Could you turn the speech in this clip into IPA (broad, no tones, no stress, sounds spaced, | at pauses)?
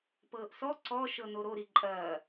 p ɤː ʔ s ɔ ǀ ɔ ʃ ɤ n o ɾ o ɾ i ǃʼ ɐː